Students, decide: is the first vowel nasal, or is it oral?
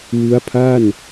oral